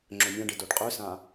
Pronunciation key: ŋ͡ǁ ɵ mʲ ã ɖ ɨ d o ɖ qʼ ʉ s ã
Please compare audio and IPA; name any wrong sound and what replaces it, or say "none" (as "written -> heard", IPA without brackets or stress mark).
none